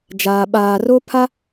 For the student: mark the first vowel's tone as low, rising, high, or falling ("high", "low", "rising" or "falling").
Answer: low